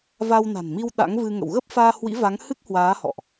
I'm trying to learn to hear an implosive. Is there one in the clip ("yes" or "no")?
yes